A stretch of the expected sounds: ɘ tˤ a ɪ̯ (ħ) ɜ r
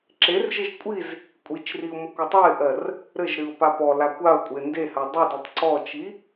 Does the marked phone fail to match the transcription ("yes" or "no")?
yes